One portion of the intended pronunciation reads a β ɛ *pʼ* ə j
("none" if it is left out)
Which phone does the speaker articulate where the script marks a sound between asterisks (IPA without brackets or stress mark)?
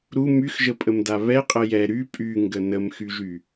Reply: qʼ